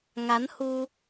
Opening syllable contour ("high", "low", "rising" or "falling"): rising